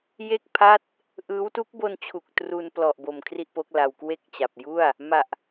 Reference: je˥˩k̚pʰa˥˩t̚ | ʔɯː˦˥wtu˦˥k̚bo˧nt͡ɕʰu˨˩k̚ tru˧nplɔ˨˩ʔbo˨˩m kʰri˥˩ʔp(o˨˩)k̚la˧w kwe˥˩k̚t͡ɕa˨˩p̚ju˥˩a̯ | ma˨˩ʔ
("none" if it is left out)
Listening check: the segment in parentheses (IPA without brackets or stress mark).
o˦˥